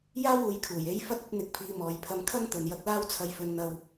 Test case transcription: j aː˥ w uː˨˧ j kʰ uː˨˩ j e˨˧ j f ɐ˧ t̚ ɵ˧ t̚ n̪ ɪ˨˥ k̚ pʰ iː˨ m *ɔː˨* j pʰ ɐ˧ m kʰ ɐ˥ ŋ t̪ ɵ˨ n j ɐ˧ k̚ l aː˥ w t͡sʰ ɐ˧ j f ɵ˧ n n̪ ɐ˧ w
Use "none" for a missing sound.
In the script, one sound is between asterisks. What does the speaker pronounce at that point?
ɔː˨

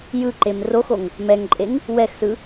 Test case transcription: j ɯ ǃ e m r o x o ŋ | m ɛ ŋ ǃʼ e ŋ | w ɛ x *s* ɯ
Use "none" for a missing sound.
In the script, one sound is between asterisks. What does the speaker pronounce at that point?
s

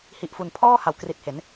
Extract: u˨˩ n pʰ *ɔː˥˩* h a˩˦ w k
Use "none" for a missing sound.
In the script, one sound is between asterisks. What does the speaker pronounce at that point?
ɔː˥˩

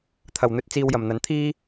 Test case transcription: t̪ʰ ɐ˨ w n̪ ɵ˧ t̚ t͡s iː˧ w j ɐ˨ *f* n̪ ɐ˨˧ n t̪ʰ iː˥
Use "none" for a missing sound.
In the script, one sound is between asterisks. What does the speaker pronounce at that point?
m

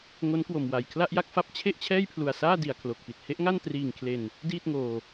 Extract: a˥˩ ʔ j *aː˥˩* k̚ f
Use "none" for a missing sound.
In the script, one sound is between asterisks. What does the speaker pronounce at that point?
a˥˩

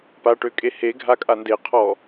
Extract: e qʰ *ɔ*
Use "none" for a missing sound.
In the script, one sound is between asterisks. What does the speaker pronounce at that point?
ɔ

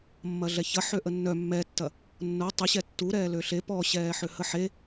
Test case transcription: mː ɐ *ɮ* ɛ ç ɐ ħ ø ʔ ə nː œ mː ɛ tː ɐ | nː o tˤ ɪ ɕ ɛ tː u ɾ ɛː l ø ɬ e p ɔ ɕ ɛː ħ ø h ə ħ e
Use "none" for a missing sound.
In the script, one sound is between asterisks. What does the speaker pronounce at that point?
ɮ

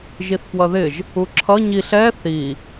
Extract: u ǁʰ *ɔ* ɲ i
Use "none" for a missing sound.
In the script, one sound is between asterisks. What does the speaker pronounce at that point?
ʌ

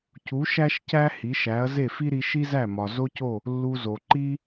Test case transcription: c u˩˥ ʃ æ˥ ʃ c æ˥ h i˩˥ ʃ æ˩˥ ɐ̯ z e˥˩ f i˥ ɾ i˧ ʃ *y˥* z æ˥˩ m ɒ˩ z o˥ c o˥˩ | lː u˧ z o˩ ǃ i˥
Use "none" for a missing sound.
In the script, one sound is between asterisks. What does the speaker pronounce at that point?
i˥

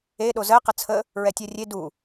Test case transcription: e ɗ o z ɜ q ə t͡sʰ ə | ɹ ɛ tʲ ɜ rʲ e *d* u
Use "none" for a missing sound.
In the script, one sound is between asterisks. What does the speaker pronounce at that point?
d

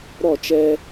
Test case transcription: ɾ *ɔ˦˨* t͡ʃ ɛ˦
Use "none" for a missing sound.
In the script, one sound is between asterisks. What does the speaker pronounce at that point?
ɔ˦˨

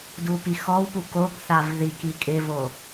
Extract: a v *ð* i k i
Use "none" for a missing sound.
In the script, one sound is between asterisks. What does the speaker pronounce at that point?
ð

